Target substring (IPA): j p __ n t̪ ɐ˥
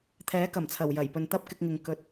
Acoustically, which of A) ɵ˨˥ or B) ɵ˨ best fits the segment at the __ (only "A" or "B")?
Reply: B